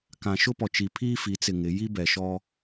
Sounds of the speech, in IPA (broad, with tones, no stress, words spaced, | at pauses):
kã˨ʃʊ˦pɔ˨t͡ʃi˨ pʰiː˦fi˨˦t͡sɪ˨ŋɪ˨˦ ji˦bɛ˨ʃɔ˦